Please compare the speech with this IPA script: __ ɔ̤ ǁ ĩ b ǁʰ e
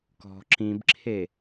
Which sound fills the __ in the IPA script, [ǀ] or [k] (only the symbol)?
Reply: k